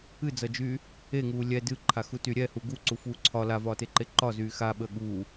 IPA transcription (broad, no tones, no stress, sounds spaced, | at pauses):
ɨ d͡z ʌ d͡ʒ yː | e ŋ uː lʲ ɛ d ɨ ǃʰ a x u t y ɾʲ ɛ h u ɡ u ǀ u f uː ǀʰ ɒ l a v ɒː t e ǃ e ǃ ɒ z yː x a ɓ əː ɠ uː